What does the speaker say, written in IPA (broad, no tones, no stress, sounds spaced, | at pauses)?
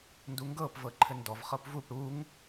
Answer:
n d u ŋ ɡ ɤ p v ɤ ǃʰ ɘ n d ɔ v χ ɤ p v u p ɽ u ŋ